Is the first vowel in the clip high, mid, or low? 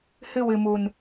high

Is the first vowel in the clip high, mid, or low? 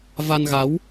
low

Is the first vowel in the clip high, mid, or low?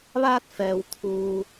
low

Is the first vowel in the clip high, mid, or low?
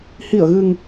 high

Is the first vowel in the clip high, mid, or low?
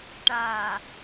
low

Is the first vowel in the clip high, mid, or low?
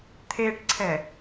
mid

